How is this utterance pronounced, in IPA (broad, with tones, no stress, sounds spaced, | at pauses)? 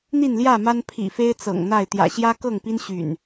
n̪ i˥˨ n l j ä˥˨ m a˦ n pʰ ḭ˨˩ f e˦ ɪ̯ t͡s ɤ̰˨˩ ŋ n̪ a˥˨ ɪ̯ t̪ j ä̰˨˩ ɕ j ä˦ k ɤ˥˨ ŋ p i˦ n ɕ y̰˨˩ n